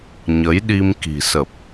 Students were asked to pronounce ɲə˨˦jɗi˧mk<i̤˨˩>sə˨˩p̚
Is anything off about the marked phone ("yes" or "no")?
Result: no